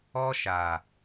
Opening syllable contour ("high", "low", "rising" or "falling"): high